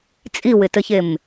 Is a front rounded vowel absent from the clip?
yes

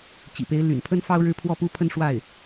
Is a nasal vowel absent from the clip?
yes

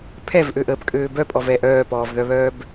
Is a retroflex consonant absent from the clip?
yes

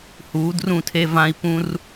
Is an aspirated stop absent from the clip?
no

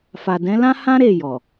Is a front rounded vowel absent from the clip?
yes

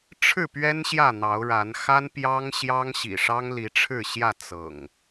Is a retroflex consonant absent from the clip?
no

